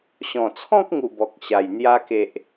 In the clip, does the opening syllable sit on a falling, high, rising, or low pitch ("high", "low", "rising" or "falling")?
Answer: low